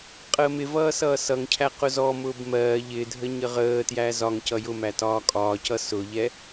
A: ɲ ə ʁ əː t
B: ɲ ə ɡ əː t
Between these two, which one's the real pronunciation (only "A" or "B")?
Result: A